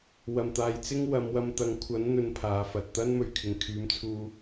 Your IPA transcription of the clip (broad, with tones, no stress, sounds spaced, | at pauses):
w ɐ˨˩ m t̪ aː˨ j t͡s ɪ˥ ŋ w ɐ˨˧ m w ɐ˧ m t̪ ɐ˨˧ ŋ kʷʰ ɐ˨˥ n n̪ ɵ˨˧ n pʰ aː˨˥ f ɐ˨ t̚ t̪ ɐ˥ n m ɵ˨ ɥ kʰ ɪ˨˩ ŋ kʰ yː˨˧ m t͡sʰ uː˧